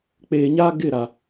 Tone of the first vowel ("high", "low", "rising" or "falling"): low